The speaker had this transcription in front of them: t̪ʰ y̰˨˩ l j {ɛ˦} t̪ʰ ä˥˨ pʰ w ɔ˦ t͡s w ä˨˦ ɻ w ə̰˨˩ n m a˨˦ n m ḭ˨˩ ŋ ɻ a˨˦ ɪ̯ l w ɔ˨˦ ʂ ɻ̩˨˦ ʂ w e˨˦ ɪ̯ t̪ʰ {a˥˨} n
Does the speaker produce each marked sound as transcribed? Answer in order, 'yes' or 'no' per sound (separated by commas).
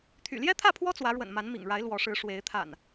yes, no